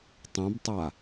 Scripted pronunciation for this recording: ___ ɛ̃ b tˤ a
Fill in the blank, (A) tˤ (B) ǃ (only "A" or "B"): A